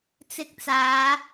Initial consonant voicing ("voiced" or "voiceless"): voiceless